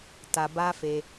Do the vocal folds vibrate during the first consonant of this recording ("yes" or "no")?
no